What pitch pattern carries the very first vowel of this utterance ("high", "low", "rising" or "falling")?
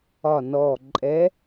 low